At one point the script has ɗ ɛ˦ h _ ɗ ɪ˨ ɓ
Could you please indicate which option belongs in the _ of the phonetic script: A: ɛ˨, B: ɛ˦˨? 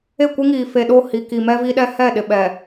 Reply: B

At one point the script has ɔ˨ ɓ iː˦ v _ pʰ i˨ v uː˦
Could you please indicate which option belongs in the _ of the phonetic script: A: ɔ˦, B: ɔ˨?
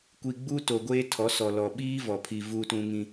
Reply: B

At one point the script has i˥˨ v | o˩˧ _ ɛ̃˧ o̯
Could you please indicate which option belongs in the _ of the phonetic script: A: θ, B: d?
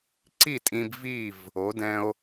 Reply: B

